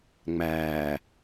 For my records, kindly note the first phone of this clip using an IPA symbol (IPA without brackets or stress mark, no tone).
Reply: ŋ͡m